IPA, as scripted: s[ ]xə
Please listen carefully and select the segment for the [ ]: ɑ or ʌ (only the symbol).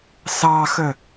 ɑ